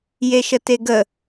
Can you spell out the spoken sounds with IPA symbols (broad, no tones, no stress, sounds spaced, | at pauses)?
j e ʃ ə t e ɡ ə